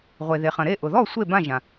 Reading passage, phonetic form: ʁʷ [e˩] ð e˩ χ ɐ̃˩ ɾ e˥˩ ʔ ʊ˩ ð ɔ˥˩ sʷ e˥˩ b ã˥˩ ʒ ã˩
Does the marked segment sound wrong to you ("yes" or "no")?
no